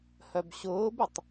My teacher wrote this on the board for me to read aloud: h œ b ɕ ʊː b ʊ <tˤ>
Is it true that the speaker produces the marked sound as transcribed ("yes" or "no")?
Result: yes